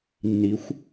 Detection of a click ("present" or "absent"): absent